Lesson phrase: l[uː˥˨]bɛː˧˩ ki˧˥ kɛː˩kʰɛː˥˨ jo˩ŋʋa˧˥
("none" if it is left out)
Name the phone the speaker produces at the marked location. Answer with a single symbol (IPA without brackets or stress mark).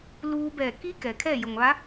uː˧